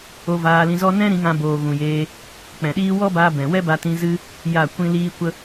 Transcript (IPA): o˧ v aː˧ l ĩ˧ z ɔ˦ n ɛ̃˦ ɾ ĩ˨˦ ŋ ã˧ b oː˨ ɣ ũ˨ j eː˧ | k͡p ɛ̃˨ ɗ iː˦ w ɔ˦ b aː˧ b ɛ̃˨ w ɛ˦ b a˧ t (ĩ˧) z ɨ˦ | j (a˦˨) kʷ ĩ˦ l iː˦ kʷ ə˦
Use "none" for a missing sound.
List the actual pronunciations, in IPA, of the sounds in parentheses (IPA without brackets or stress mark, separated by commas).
ĩ˧, a˦˨